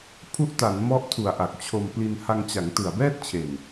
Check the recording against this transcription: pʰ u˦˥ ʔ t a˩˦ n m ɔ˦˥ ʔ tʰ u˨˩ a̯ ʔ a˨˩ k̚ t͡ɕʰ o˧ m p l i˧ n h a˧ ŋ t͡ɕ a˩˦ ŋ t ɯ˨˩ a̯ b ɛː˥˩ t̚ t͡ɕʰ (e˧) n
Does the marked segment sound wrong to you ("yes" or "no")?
yes